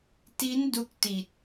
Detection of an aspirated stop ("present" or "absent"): absent